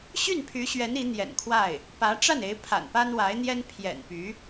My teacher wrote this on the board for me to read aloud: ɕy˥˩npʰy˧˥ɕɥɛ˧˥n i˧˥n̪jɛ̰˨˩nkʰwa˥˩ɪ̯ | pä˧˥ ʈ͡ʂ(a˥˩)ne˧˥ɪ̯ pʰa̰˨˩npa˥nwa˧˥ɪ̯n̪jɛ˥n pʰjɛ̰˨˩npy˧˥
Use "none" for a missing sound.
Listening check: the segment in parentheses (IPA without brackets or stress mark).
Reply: a˥˩